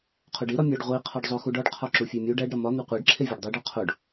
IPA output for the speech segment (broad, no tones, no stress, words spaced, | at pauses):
qʰoɖi ɾɒmʲɒɖ ʁʷi qʰɒɖzˤoxuɖɒɖ qʰɒǁufʲemʲu ɖæɖɾɒ mɒ n̪eqʷeɖǁʰevʲɒɖ dˤeɖɒ qʰoɖ